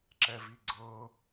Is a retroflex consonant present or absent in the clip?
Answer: absent